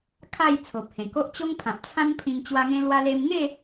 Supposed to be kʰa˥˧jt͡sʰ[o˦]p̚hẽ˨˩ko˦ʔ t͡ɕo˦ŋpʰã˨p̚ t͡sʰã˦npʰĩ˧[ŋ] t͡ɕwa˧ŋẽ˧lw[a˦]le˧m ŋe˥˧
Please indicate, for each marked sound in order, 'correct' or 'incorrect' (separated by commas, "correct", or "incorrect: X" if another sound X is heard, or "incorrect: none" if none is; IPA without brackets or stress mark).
incorrect: o˨, correct, incorrect: a˧